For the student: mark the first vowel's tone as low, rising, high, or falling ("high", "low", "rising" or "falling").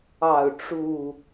falling